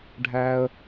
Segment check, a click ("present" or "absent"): absent